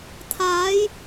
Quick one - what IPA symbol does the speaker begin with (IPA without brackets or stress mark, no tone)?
t̪ʰ